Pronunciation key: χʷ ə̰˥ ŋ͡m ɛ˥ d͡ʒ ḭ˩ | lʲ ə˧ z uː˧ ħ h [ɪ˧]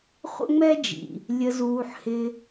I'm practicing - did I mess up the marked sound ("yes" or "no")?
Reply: no